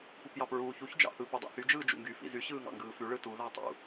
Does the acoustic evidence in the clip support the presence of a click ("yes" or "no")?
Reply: no